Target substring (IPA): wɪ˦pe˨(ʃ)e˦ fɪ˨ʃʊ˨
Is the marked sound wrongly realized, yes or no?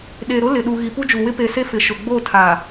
yes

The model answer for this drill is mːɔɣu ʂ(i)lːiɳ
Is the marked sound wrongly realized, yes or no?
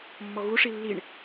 no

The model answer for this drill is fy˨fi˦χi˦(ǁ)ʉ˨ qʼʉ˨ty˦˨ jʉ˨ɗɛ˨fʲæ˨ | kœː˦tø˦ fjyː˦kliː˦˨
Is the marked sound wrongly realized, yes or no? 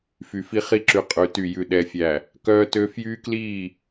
no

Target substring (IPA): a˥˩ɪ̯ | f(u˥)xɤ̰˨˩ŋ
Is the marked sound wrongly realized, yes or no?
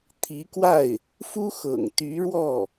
no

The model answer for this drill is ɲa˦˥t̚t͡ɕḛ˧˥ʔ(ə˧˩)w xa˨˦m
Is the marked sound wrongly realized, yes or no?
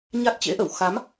no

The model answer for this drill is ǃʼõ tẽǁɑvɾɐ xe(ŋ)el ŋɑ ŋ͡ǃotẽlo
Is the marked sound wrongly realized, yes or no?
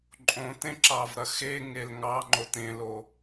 no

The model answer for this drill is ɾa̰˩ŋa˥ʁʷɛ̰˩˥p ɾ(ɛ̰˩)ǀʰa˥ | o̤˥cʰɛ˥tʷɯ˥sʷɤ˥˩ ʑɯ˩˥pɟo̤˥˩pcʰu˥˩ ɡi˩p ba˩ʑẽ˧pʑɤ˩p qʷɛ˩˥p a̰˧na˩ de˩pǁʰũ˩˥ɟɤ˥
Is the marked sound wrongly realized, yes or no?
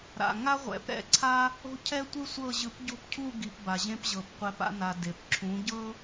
yes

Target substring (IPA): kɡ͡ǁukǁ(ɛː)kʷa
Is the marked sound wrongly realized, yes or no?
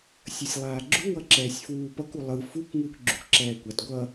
no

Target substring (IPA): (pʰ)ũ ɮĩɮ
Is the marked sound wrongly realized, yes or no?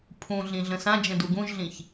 no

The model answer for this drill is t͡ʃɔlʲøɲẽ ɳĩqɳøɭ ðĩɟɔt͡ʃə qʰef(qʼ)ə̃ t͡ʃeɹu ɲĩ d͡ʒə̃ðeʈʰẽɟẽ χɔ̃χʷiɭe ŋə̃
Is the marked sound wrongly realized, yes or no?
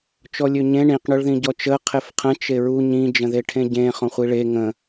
yes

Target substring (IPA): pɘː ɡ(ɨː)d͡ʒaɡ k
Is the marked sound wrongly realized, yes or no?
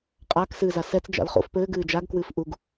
no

